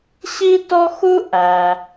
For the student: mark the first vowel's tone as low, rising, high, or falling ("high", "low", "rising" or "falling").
high